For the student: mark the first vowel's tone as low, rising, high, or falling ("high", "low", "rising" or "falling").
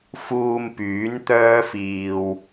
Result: low